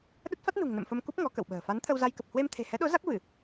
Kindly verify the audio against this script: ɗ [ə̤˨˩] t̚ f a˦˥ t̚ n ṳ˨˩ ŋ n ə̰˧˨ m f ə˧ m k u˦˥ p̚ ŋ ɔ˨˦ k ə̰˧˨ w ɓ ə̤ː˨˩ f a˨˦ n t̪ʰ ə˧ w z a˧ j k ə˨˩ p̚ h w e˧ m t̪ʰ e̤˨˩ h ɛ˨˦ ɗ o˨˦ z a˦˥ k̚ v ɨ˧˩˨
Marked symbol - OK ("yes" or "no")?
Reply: no